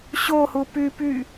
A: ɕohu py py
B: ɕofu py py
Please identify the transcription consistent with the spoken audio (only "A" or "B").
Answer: A